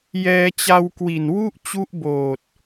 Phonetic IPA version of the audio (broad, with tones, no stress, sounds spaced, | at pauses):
j ɛː˧ t͡ɕ a˧ w k w i˨˩ n w u˥˩ ʔ t͡ɕ u˦˥ ʔ b oː˨˩ t̚